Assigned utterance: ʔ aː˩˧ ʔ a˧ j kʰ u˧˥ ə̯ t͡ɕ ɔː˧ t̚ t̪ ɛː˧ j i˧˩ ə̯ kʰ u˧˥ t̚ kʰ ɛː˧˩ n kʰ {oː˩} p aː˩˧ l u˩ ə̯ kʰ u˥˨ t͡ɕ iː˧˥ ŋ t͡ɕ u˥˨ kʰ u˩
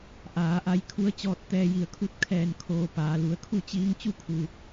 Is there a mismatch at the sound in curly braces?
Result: yes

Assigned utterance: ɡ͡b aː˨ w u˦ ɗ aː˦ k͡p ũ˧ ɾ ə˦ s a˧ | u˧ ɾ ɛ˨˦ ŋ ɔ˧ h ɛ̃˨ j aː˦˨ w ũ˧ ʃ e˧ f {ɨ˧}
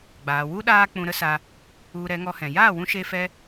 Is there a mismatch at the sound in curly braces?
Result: yes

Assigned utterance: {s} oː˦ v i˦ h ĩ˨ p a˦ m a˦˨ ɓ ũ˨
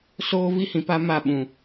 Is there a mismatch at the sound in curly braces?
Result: no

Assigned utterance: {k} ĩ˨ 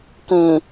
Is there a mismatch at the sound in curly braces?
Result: no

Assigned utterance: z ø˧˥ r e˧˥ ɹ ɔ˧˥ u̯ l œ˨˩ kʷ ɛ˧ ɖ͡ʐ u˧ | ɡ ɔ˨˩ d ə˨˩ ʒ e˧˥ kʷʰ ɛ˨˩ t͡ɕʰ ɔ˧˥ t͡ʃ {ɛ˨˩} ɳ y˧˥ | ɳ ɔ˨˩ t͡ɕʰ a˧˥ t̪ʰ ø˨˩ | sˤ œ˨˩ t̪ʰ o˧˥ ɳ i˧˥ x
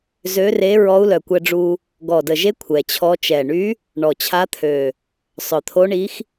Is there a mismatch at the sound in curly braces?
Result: no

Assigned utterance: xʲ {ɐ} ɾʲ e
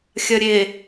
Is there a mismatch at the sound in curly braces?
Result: no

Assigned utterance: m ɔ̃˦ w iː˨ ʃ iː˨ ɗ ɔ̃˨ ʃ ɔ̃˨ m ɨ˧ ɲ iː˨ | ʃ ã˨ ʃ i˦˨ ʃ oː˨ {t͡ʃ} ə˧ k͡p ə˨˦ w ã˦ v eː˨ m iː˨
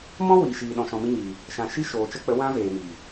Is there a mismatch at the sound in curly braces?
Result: no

